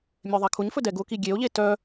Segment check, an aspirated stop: present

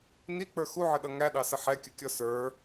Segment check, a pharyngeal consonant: present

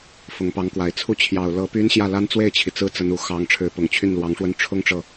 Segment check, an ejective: absent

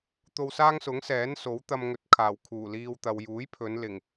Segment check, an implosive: absent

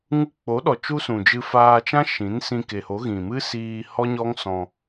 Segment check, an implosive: present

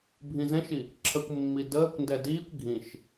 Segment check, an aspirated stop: present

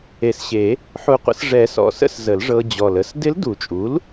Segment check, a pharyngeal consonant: present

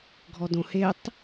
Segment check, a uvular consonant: absent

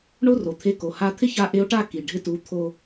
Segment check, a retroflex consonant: present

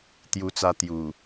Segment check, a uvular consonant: absent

